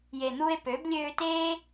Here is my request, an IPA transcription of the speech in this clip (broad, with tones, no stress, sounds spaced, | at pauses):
j e˨ n̪ u˧ e̯ p ø˨˦ b lʲ øː˧ t eː˦